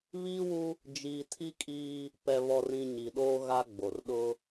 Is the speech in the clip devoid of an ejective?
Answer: no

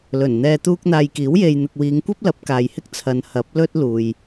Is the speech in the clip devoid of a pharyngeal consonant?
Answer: yes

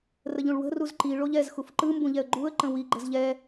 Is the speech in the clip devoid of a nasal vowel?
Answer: no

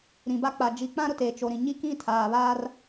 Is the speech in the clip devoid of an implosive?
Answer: yes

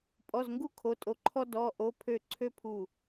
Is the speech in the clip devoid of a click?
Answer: no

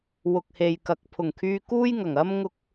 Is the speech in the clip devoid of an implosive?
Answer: yes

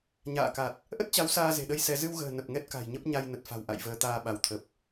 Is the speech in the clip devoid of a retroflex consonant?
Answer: yes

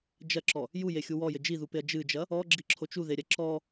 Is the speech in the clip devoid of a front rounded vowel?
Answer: yes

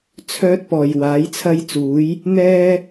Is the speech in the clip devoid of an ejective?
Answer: yes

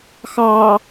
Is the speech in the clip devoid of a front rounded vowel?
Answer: yes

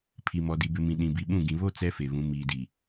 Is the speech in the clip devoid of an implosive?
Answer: no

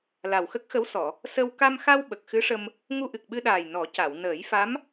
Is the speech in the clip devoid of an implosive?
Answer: no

